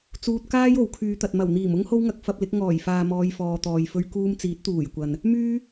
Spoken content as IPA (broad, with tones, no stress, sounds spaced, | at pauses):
t͡s uː˨ t̚ k aː˥ j o˨˥ w kʰ yː˨˧ t̪ ɐ˨ t̚ m ɐ˨˩ w n̪ iː˨˩ m ʊ˥ ŋ h o˥ w ŋ ɐ˧ k̚ f ɐ˧ p̚ l ɪ˨˥ k̚ ŋ ɔː˨˩ j f aː˨ m ɔː˨˧ j f ɔː˨ t̪ ɔː˨ j f ɵ˧ ɥ k uː˧ m t͡s iː˨˥ t̚ t̪ uː˨˩ j kʷ ɐ˨ n | m yː˥